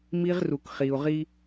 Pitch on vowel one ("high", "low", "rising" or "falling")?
high